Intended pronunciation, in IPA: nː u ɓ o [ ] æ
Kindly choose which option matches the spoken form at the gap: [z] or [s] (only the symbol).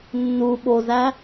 z